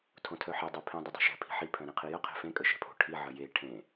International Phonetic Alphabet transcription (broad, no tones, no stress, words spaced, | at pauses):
tʰõtʰœħe dˤøpʰĩ dˤədˤe̤ʃɛ̤ pʰi̤ħi pʰœ̃ɾẽqʰijə qʰe̤fẽ kʼəʃɛ̤pʰo̤ ʈʰi ʕəje ʈʰẽ